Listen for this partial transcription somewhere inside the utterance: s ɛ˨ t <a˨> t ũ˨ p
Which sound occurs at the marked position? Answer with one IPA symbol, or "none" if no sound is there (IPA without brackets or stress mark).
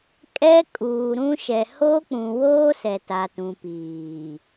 a˨